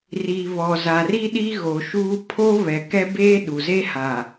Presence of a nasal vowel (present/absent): absent